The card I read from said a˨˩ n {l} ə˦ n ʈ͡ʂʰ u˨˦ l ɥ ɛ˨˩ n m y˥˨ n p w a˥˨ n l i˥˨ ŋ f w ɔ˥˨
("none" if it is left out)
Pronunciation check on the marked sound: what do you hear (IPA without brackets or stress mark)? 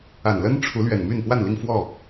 l